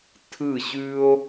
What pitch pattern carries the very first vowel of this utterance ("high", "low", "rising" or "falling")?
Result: falling